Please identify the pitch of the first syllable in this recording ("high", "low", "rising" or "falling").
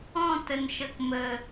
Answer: falling